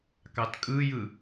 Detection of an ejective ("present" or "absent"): present